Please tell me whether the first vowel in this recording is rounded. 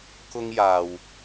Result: yes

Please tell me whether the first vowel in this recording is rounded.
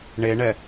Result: no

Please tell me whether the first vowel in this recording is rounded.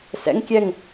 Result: no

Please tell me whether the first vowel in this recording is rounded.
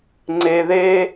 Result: no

